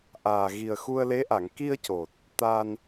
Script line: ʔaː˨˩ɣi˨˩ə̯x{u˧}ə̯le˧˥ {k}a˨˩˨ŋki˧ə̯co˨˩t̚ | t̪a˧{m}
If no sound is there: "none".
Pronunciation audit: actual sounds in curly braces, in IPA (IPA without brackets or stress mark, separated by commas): u˧, ʔ, n